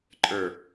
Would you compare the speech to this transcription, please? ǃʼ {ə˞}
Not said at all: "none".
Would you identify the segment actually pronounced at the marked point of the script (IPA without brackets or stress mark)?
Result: ə˞